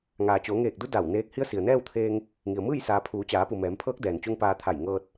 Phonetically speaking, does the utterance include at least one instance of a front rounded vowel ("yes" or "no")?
no